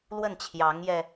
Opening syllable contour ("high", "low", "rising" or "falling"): falling